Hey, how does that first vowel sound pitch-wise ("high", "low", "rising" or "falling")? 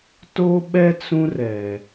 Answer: high